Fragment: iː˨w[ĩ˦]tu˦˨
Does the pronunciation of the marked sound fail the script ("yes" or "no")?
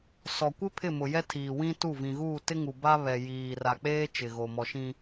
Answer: no